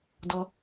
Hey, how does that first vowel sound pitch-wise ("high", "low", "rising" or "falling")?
high